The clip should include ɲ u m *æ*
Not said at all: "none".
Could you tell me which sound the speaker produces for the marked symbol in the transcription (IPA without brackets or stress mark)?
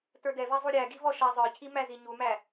æ